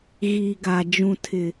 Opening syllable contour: low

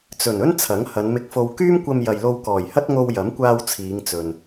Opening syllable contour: low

